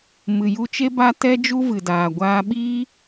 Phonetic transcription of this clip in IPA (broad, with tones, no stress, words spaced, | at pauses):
mɨ˨ju˧t͡ʃe˦ ba˧ tɛ˦ d͡ʒu˦vɨ˨daː˨ ɡʷaː˧ɓiː˦